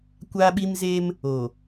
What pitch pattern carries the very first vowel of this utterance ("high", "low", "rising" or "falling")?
high